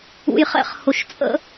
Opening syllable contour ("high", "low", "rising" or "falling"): low